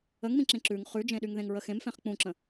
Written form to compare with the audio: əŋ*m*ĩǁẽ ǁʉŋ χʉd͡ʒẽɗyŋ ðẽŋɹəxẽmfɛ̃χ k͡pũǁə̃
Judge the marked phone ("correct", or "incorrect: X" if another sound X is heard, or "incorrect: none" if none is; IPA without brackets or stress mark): correct